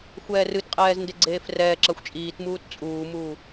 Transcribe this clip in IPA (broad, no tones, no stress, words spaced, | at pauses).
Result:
xʷɛːrɨtqʼɛːz ndeɡ͡ǀeːfrɛː ǁaxʷt͡ʃʼiːtmuːt t͡sʼuːmuː